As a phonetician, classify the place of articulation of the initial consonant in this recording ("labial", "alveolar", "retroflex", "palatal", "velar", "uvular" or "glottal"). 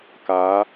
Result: velar